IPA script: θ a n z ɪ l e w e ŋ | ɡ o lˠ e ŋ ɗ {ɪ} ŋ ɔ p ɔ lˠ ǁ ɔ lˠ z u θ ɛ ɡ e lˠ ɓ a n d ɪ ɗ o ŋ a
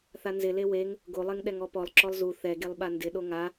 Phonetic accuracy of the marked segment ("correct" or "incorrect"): incorrect